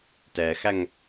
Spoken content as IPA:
t ɛ x æ ŋ

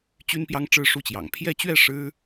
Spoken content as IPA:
t͡ɕ y˥ n p j ɑ˥ ŋ ʈ͡ʂ ɻ̩˥˧ ʂ u˥˩ t͡ɕ j ɑ̰˨˩ ŋ pʰ j ɛ˥˧ t͡ɕ ɥ ɛ˥˩ ʂ ɻ̩˥

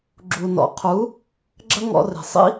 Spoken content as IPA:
ɡ͡ǁ u˨ n ɔ̰˨ qʰ u˨˦ | ɡ͡ǁ ɐ˦ ŋ ɔ̰˧ r e̤˨ sˤ ḭ˦

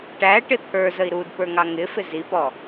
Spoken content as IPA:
ʈ æ ʈ ɪ t̪ʰ ə˞ z ə i̯ ɾ u d p ə˞ ŋ ɑ ŋ ɪ f ɪ z i p ɔ

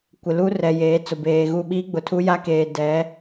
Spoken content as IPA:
kʷ ɪ˨ l u˦ r ɛ˨ j eː˨˦ t͡s ʊ˨ b eː˨ ɣ u˦˨ ɓ iː˦ ɡ͡b ʊ˨ tʰ u˦ j a˦ k eː˨ d ɛ˨˦

